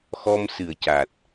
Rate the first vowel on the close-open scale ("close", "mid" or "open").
mid